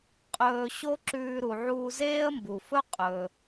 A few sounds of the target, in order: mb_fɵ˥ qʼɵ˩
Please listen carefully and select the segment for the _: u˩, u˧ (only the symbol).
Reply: u˩